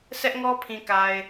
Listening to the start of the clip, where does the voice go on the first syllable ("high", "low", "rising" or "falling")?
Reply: high